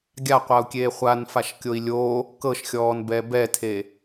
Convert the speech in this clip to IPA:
ɡʲaqʷau̯kʲeː χʷanfaʃkʲoi̯ lʲo | kɤʃxʲɔːnbɛ bɛtʰe

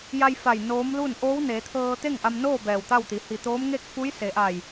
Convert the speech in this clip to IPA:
ja˧jfa˧˩j noː˧˥mlu˥˨n ʔoː˧˥wneː˩˧t̪ʰɤː˧ t̪e˥˨ŋʔa˧mnoː˥˨ bɛː˧˩wt̪a˥˨wt̪i˩˧ hi˧˩t̪oː˧˥mŋe˥˨k̚ fu˧˥jse˩˧ ʔa˧˩j

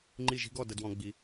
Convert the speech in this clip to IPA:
ŋ͡ǃi˥˧ʒi̤˥ɡɔ˥˧ də˥dwɔ̃˥ɡ͡bi˧˥

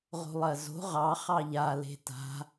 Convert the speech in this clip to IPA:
ʁo̤lˠɜzo̤ ʁɑ χɑʎa le̤ta̤

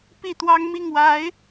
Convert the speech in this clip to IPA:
pi˥˩t̪wɑ˥ŋ mi˥˩ŋwa˧˥ɪ̯

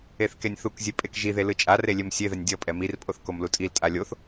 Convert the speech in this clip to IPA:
eθkenʲθukzʲe pʼekʒiðe lɯt͡ʃʼare lʲemsʲeðɛnʲ dʲʌpʼɛ mirpʼoθ komlutʼiltʼa lʲoθ

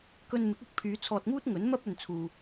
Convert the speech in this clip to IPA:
kɵ˧n mɪ˨˥k̚ʊ˥k̚pʰyː˨˧ t͡sʰɔː˧t̚ŋuː˥t̚ŋɵ˨˥nmɐ˥p̚ ɵ˧nt͡sʰuː˧

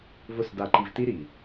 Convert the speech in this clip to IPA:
vʊ˦˨sda˧ǃi˧v ti˦ɾi˨

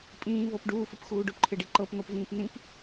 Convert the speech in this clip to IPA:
pʼĩː vɤpɖuːfəp xuːɖʊpǃʰɪɖi ǃɤp n̪ɤpvĩːpnĩp

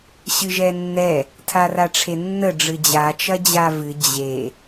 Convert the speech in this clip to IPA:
ɕɨʒɛnːɛ | tʰaraʈ͡ʂʰenːə ɖ͡ʐɨd͡ʑa t͡ʃɐd͡ʑavɨ d͡ʑe

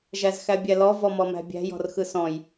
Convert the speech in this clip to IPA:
ʒæzxæbʲælɔ vɔmɔmæ̤bʲæ̤ jɔ̤rxɯsɔ̃j

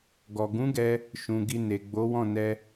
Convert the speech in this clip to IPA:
ɡɔ˨ ɡũ˨˦ɡɛ˧ | ʃũ˨ ɡi˨ ne˨ɡ͡bo˨˦wɔ̃˦˨ nɛ˧

